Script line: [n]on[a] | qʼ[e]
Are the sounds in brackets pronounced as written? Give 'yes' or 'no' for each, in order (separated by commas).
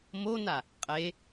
no, yes, yes